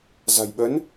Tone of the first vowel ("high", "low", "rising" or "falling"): low